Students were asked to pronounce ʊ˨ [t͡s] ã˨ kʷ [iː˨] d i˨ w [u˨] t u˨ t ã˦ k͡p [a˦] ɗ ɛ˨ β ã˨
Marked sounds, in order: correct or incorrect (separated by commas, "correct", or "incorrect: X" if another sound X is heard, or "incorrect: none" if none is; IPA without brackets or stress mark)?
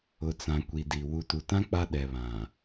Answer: correct, incorrect: i˨, correct, correct